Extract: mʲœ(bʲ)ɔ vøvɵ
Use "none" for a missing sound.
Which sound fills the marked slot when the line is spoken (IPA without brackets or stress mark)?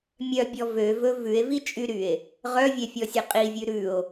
bʲ